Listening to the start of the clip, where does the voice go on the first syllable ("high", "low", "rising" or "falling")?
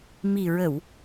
low